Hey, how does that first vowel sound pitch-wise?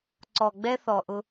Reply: low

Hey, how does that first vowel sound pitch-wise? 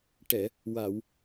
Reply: low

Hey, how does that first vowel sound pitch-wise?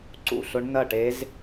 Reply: falling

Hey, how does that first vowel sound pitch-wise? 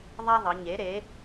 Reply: high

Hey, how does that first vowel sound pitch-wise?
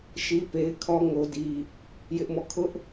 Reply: high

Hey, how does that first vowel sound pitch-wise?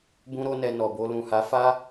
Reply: high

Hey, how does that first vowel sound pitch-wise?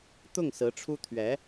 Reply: falling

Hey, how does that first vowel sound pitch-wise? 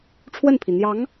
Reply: falling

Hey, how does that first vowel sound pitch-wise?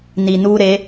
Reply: low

